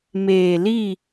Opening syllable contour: low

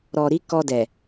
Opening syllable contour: low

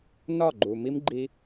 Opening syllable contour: falling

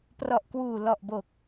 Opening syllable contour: low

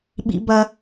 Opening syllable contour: high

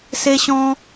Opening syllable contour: high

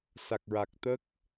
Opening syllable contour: low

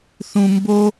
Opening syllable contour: low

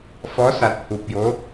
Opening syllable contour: rising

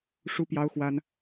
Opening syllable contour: high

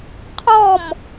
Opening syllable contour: falling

